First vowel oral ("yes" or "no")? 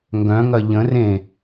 no